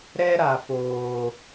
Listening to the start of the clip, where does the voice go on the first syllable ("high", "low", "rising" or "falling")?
high